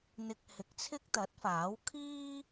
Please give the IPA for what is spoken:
n̪ ɪ˧ k̚ h ɪ˨˥ k̚ t͡sʰ ɪ˥ k̚ t̪ ɐ˨˥ t̚ f aː˨˥ w kʰ iː˥

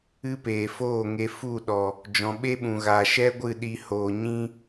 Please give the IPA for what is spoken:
ɨ˦ p eː˨ f oː˦˨ ŋ e˧ f u˦˨ ɗ ɔ˨ | d͡ʒ ɔ̃˨ ɓ e˦ ɓ ũ˨ ɣ a˨ ʃ ɛ˦ ɡʷ ɨ˦˨ ɗ i˧ h oː˨ ɲ ĩ˦

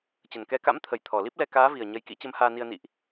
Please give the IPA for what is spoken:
t͡ɕ ə˨˩ n k ɛ˨˦ k a̰˧˥ m t̪ʰ ə˨˩ j t̪ʰ ɔ˨˩ l i˦˥ p̚ l ɛ˧ k aː˨˦ v i˨˩ ə̯ ɲ ə˨˦ j k ḭ˧˥ t͡ɕ ə˨˦ m h aː˧ n i˧ ə̯ n ḭ˧˨ ʔ

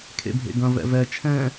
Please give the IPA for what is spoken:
kʰ ḛ bʱ ḛ ɡ ɐ̃ v ɛ̰ v ɛ t͡ʃʰ ɛ̃

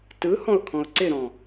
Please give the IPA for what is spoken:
t ɯ h ɔ̃ ʊ̯ kʰ ɔ̃ ʊ̯ ǀ ɪ ɾ ɔ̃

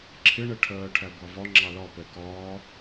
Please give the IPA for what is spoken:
ǁʰ ɪ ɳ ɛ ʈʰ ɜː ʈʰ æ ɡʷ ɑ v ɒ ŋ͡ǁ ɑ l ɒ p ɛ k ɒː

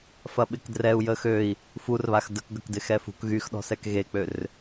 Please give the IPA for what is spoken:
f ɐ ɓ ɪ k d r ɛ u̯ j ə x ø i̯ | f u r β a x d ə k ɡ ɐ k d ɪ x ɛ f ṳ k ɣ y x ɗ ɔ̤ s ɛ k ɣ e k͡p ø r

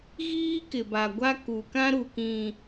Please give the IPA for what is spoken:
ɣ iː˦ k ɪ˨ b a˨ ɡʷ a˦ k u˨ k ã˦ ɾ u˨ k ĩ˨

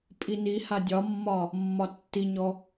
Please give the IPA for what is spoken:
pʼ i n i h a dʲ ɒ mː ɒ | mː ɒ tː i ɲ ɔ

